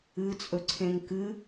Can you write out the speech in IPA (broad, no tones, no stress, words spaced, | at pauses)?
ɨt͡sʼɵǀʰẽŋ kɨ